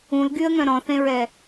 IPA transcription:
ũlɡyə̯ŋœ̃ ɾɔ̃θẽɹɛ

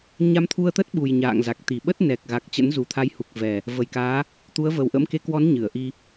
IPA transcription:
ɲa˧mt̪ʰu˧ə̯t̪ə˦˥t̚ɓu˨˩j ɲa̰ː˧˨ŋza˨˩k̚t̪i˨˩ ɓə˦˥t̚ nɛ˨˩k̚ɣa˨˩k̚ t͡ɕə̰˧˥nzu˨˩t̪ʰa˨˦jhu˨˩k̚ vɛ˨˩ | və˨˩jkaː˨˦ | t̪u˨˦ə̯və˨˩w ʔə̰˧˥mke˨˦kwɔ˨˦n ɲɨ˧˩ə̯ʔi˧

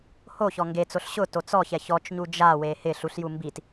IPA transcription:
ho çɔŋɡet͡soɬ ɕʊ tot͡sɔçɛ çɔt͡ʃɲu d͡ʒawe hɪ ɬuɬju mbit

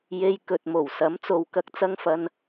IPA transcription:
je˨j kɵ˨t̚mo˨˩w sɐ˨˥mt͡so˨w kɐ˧k̚t͡sɐ˧ŋfɐ˨n

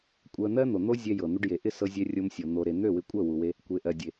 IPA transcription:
kʷʼɜ˧n̪ɜ˦n̪o˨n̪o˦ zʲɛ˧jɤ˨ n̪u˧ɖje˨ʔɪ˦˨ sɤ˧zʲɛ˧ rʲo˧msʲɤ˨ n̪o˨ɾe˨ n̪ø˦˨wɪ˧kʷʼɜ˦˨ wu˨we˧ | kʷe˨ʔɜ˨dʲe˨

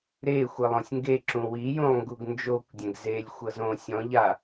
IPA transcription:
ɾexʷɯlˠ õsʲŋɡe ǁũwijũlˠŋɡuɡ nd͡ʒokʷdʲɛ̃ɡ zelʲ xʷɤzõ sʲɔ̃ ʎa

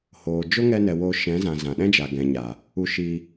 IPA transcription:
hoː˨ d͡ʒo˦ŋɛ˧nɛ˨ woː˧ʃɛ̃˨˦zã˨ zã˨ɗɛ̃˦d͡ʒa˨ ɡɛ̃˨ɲa˨ | u˧ʃiː˧

